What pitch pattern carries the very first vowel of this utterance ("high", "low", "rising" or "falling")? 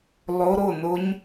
rising